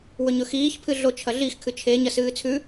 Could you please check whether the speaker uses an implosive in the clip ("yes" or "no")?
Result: no